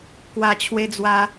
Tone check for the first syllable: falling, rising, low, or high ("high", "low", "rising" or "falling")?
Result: low